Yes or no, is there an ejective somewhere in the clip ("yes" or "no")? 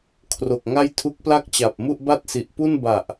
no